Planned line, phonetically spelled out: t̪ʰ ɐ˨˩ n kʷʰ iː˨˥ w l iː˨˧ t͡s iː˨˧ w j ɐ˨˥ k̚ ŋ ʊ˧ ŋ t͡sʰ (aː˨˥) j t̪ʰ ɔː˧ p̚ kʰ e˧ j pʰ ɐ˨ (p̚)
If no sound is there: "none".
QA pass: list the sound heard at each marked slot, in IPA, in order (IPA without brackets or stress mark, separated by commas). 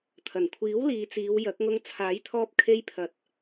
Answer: aː˨˥, t̚